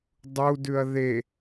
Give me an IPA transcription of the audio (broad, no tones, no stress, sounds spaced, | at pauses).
dˤ u d ʉ ɐ̯ ð e